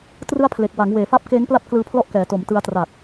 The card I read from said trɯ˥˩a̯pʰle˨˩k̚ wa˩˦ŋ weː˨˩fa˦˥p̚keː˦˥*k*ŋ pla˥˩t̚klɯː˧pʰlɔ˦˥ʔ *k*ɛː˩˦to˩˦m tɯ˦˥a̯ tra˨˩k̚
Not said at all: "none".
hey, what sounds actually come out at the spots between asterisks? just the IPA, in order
none, k

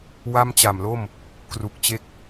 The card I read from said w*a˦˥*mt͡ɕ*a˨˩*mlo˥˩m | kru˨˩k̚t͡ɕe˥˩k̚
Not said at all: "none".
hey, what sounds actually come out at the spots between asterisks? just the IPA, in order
a˥˩, a˨˩

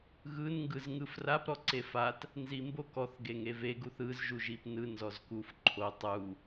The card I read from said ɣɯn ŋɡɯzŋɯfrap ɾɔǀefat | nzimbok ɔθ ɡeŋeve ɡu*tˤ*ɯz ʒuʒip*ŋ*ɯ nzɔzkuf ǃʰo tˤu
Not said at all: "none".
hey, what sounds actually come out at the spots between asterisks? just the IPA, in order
θ, n

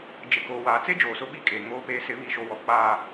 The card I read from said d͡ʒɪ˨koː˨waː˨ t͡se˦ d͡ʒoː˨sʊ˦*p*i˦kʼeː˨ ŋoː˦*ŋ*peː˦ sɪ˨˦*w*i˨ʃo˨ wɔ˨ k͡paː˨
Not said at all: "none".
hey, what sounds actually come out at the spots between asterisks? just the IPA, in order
ɓ, none, β

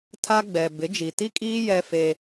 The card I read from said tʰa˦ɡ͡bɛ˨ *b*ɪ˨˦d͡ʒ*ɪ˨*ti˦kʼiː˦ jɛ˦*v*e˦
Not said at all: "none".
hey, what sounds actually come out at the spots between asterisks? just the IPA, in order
b, i˨, f

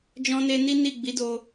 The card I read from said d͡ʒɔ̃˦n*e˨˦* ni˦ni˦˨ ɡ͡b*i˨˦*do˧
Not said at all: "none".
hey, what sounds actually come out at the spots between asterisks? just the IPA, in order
e˦, i˨˦

